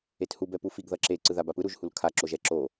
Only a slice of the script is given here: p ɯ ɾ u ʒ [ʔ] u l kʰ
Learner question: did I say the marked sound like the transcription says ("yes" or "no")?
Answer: no